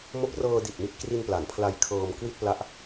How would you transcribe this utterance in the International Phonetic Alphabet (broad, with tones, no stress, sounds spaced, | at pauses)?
m o˦˥ k̚ r ɤː˧ d i˨˩ t̚ m i˦˥ t̚ k r i˧ n p l a˩˦ n pʰ l a˧ j kʰ ɤː˧ m k w i˥˩ t̚ p l a˦˥ ʔ